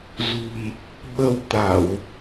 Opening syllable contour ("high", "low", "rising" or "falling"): low